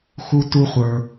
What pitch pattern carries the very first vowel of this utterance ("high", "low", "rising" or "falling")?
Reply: high